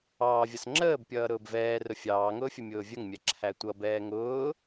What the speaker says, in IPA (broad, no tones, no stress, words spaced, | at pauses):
ɑːvʲʌs ŋ͡ǁəːbpʲʌː ɾʊːbvɛːrʊ fʲɑːŋʊːfʲə mʲʊːvʲəŋmʲɛ ǁʰætʷʌ bɛːŋʊː